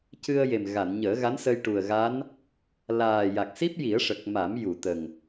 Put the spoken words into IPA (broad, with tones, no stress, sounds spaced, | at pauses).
c ɨ˧ ə̯ j e˨˩ m ɣ a˨˩˨ n ɲ əː˨˩˦ ɣ a˧˥ n s ə˧ j ʈ u˨˩ ə̯ ɣ a˧˥ n | l aː˨˩ j a˨˩ k̚ s i˦˥ p̚ j i˨˩˦ ə̯ ʂ ə˨˩ k̚ m a˨˩˦ m j u˨˩˨ t̪ ə˨˩ ŋ